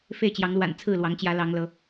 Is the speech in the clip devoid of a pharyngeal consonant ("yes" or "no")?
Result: yes